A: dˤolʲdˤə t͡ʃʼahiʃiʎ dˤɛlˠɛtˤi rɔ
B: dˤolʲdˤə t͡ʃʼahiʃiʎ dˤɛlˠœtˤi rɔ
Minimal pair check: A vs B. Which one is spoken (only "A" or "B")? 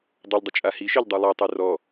A